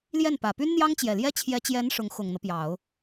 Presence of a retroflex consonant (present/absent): present